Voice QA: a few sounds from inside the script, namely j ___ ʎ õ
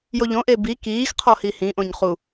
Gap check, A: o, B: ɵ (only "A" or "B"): A